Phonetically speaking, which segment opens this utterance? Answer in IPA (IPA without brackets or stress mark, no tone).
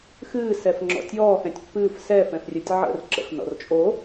x